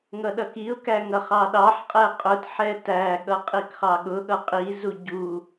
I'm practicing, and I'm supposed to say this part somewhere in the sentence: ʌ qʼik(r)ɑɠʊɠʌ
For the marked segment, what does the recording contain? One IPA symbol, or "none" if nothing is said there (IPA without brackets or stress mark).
χ